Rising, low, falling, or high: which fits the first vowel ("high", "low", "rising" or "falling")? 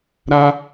high